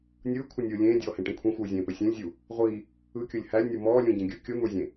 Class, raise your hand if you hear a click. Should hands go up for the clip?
no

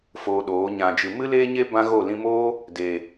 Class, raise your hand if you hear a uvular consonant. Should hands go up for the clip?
no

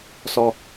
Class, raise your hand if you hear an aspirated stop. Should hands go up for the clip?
no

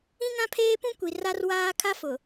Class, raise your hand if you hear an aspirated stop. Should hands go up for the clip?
yes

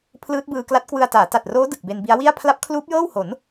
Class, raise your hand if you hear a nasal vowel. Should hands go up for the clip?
no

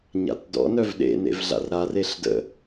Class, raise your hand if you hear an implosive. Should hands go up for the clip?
yes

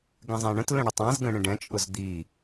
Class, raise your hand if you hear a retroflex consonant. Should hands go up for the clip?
yes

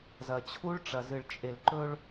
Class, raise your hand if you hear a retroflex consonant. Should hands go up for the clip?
yes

